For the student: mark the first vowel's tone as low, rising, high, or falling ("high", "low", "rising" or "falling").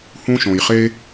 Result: high